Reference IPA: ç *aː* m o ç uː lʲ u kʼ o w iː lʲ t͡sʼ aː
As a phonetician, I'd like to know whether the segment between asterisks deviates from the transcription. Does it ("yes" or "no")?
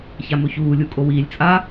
yes